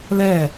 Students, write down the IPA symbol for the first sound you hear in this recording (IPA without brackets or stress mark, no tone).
l